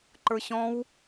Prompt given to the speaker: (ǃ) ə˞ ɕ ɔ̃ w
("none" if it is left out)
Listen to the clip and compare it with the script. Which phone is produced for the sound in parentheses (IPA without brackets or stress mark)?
ǃ